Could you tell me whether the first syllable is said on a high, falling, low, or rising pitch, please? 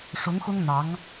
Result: rising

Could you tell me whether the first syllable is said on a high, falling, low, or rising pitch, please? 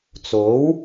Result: rising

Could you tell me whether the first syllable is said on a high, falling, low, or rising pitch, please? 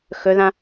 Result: rising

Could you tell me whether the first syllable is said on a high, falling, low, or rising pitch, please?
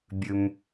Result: low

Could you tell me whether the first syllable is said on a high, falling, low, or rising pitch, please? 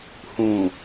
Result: low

